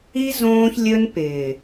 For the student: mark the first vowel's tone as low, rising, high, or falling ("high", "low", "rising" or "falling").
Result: high